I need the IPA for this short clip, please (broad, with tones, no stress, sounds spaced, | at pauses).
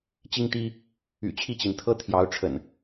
t͡ɕ i˦ ŋ t̪ i˦ | y̰˨˩ t͡ɕʰ i˥˨ t͡ɕ i˩ n t̪ʰ ɤ˦ t̪ʰ j ɑ˨˦ ʊ̯ ʈ͡ʂʰ ə̰˨˩ n